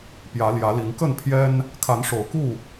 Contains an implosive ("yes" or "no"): no